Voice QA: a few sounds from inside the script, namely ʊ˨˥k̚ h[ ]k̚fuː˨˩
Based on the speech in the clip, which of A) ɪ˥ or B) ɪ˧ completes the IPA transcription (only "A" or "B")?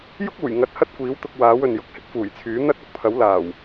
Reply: A